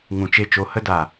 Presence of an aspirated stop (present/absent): absent